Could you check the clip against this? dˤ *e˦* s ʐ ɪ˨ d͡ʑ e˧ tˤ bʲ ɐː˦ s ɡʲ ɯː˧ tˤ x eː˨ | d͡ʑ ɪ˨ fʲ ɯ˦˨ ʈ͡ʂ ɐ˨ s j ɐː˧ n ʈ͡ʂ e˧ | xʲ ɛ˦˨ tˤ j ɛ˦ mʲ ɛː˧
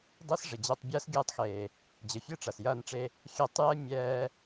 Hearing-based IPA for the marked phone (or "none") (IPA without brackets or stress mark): i˦